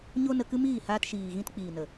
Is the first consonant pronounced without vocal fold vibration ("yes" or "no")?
no